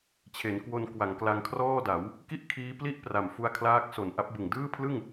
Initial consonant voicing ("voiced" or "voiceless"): voiceless